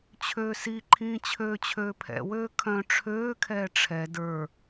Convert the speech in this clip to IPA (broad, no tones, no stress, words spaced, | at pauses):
t͡ɕʰøːsiǃʰĩː t͡ɕʰøːt͡ɕʰøːpʰɛ̰wøː kʰœ̃ ʈ͡ʂʰøːkʰɛː ʈ͡ʂʰɛ də˞